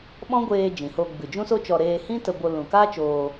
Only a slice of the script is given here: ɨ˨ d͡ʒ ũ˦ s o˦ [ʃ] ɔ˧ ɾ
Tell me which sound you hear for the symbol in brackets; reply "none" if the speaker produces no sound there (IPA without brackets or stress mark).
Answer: t͡ʃ